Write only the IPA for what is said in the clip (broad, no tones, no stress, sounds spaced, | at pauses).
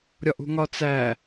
ɾʲ ɒ ʔ ṳ ŋ ɒ t͡s æ